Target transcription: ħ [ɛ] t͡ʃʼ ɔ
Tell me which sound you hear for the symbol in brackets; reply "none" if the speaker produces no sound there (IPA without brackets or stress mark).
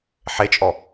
e